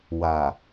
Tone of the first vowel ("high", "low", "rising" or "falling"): low